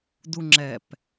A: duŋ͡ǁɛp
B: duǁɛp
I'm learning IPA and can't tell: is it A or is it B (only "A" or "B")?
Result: A